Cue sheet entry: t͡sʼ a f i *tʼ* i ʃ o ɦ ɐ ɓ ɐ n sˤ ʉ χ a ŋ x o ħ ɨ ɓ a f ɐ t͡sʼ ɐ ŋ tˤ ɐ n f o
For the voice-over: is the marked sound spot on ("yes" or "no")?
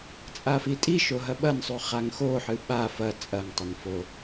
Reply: yes